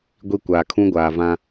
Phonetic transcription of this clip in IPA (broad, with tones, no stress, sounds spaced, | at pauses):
ɡʷ i˦ kʷ aː˨ kʰ ũ˦ ɡʷ aː˨ v ã˦